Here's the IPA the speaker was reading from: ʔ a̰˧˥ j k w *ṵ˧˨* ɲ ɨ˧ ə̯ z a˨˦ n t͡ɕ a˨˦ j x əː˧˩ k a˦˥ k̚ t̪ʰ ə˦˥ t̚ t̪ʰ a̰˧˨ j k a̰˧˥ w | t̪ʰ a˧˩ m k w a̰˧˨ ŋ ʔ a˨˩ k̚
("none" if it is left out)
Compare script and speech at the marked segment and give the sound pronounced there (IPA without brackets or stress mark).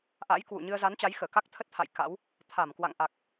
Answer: ṵ˧˨